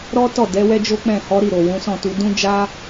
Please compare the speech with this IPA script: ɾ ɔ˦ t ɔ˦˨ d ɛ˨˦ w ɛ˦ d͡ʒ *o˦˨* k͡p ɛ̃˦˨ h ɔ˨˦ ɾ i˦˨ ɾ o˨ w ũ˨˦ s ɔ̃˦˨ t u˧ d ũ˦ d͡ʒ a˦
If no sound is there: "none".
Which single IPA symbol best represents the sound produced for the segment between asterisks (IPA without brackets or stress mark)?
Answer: o˦